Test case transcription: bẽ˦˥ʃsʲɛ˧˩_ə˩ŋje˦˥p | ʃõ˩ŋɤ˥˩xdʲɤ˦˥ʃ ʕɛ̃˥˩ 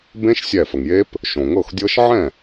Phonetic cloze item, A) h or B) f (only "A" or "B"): B